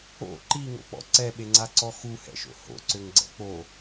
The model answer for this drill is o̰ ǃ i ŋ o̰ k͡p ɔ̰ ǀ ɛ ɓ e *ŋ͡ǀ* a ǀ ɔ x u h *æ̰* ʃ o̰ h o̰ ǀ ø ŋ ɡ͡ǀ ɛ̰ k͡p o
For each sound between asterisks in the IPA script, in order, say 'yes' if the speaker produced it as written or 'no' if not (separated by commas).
yes, no